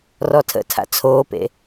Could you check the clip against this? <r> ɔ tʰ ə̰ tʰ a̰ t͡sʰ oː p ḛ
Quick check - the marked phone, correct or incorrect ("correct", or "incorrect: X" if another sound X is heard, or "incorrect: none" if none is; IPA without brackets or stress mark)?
correct